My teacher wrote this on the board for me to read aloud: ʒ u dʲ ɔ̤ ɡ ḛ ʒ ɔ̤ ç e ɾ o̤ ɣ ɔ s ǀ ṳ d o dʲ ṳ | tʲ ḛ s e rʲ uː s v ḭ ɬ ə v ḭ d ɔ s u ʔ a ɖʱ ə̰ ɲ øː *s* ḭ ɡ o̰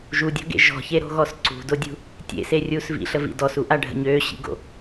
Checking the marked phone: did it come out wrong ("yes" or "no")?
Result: yes